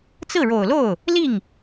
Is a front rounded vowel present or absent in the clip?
absent